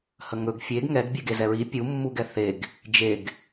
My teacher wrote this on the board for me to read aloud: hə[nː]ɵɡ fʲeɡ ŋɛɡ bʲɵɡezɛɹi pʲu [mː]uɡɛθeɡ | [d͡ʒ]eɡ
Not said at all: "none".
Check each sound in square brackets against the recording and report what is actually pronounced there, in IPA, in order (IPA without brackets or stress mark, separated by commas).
ŋ, mː, d͡ʒ